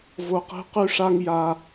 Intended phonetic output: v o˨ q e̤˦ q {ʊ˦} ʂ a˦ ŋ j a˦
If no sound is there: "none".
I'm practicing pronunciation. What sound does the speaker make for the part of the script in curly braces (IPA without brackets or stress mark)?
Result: ʉ˦